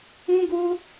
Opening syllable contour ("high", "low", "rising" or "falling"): high